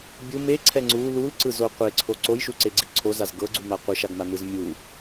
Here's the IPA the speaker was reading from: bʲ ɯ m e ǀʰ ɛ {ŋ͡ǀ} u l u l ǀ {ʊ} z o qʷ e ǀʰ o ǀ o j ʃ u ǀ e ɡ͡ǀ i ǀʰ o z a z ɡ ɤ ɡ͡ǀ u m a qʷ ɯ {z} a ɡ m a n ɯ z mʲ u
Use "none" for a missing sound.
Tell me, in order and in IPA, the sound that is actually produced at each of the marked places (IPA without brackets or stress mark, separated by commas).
ŋ͡ǀ, ɯ, ʃ